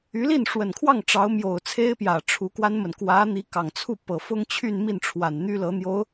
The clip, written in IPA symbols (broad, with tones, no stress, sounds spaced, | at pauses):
y˧˥ l i˥˩ n ʂ w ə˨˩ n kʰ w ɑ˥˩ ŋ ʈ͡ʂ ɑ˧˥ ʊ̯ m j o˨˩ ʊ̯ t͡sʰ e˥ ɪ̯ p j ä˨˩ ʈ͡ʂʰ u˧˥ k w a˥ n m ə˨ n k w ä˧˥ n̪ i˧˥ k ɑ˨˩ ŋ t͡sʰ u˥˩ p ɤ˨˩ f ʊ˥ ŋ t͡ɕʰ y˥˧ n m i˥˩ n ʈ͡ʂʰ w a˨˩ n n̪ y˥ l ɤ˧˥ n̪ j o˧˥ ʊ̯